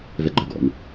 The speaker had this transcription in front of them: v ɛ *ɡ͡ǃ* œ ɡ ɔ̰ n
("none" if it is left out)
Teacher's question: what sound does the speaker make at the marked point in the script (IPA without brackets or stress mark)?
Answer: ɡ͡ǃ